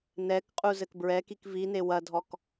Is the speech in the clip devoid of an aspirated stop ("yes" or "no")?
yes